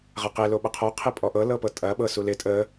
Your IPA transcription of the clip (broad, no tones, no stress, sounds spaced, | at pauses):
ʁ ɐ q e l o ɓ ɐ qʰ ɔ qʰ ɪ pʼ ɔ ʔ ɤ l ɤ p ɤ tʼ ɐ ɓ ɤ s u l ɪ tʼ ə